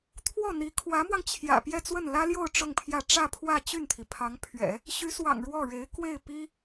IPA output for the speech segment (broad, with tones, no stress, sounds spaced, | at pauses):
t̪ʰ w ɔ˥˩ n̪ i˧˥ kʰ w ä˧˥ m w ɑ˧ ŋ t͡ɕʰ j ä̰˨˩ p j ɛ˥˧ t͡s w ə˥˩ n l ä˥ l j o˥˧ ʊ̯ ʈ͡ʂ ʊ˥˧ ŋ pʰ j ä˥˧ ʈ͡ʂ ä˥˧ pʰ w ä˥˧ t͡ɕ y˥˩ n t̪ʰ i˩ pʰ ɑ˧˥ ŋ pʰ ɥ ɛ̰˨˩˦ | ɕ y˧˥ s w ɑ̰˨˩ ŋ ɻ w ɔ˥˩ ɻ e˧˥ ɪ̯ k w e˥˩ ɪ̯ p i˥